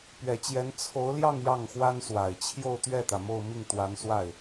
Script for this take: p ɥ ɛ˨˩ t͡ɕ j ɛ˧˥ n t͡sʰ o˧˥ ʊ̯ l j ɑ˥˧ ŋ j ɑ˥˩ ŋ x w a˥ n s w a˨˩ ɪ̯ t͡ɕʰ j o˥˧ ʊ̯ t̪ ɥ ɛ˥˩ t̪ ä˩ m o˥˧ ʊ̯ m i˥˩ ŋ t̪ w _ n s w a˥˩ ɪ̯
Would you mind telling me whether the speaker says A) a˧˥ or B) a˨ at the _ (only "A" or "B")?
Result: A